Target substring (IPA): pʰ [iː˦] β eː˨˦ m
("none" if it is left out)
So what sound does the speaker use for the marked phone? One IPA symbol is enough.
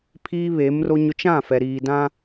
iː˦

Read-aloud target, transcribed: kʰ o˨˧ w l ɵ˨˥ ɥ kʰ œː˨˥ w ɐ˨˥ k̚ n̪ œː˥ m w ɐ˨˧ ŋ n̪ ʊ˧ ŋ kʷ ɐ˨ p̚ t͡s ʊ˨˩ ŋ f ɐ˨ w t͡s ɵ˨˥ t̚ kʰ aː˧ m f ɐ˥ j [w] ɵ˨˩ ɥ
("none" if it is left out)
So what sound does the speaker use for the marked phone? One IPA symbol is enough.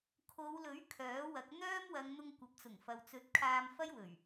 w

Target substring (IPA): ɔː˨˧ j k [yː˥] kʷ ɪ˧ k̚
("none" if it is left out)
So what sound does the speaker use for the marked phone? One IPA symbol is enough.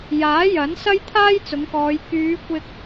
yː˨˧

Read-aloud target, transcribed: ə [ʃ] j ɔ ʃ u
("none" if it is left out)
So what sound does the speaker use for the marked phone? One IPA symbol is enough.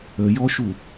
none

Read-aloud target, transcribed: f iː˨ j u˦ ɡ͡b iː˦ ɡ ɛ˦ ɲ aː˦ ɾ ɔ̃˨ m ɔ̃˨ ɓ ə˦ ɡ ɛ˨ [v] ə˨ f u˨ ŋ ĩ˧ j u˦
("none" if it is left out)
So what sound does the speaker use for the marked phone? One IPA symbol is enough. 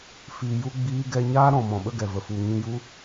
v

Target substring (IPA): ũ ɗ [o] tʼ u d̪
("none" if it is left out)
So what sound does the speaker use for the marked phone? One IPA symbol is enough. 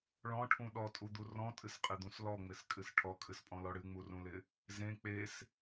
ɔ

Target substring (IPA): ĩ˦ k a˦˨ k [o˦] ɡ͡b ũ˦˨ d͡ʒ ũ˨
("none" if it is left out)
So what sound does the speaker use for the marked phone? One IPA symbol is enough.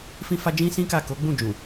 o˨˦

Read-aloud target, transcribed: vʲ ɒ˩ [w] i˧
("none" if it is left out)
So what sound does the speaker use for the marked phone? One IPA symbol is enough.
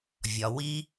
w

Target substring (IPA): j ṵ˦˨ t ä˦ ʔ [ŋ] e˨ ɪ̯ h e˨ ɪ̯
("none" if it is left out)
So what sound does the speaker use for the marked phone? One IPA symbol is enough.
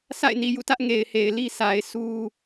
ŋ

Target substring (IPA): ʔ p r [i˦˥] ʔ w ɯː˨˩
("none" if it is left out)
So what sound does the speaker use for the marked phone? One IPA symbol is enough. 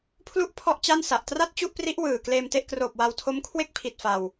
i˦˥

